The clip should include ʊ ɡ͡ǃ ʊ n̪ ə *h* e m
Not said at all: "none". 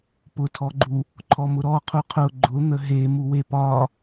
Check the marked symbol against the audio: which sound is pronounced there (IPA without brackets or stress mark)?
ɦ